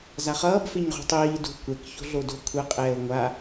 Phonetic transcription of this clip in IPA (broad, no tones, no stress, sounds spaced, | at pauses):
z a χ ʌː b f e ɲ ʁ ṳ tˤ iː d ṳ kʷ ɛ k ç o̤ ɮ o d o̤ kʷʰ ɛ qʼ ɛː ʊ̯ ŋʷ a